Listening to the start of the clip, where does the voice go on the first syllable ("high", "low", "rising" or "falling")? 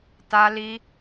high